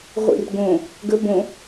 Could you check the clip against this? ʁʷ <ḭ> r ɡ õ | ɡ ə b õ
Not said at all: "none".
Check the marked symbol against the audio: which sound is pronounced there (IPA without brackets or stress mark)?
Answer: ḭ